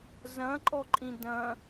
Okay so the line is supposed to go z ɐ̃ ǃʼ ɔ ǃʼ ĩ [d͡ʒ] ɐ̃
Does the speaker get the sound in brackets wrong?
yes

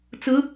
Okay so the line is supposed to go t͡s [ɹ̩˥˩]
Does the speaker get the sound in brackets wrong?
yes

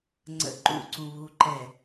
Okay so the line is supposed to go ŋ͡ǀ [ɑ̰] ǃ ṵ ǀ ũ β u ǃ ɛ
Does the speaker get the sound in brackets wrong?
yes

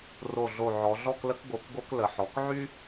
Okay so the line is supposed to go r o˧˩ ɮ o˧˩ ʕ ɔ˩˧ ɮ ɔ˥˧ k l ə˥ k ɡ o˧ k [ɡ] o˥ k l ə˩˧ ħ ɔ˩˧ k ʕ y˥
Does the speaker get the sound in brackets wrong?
no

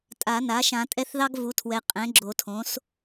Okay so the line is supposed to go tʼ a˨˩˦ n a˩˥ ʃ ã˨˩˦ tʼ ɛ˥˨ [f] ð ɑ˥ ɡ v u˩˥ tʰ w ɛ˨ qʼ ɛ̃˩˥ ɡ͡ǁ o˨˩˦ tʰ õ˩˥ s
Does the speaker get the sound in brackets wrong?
yes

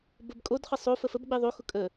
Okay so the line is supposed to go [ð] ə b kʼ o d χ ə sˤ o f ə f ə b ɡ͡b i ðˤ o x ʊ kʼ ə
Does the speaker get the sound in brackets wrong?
yes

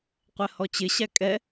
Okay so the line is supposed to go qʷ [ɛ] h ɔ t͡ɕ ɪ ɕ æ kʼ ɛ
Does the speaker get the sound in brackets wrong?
no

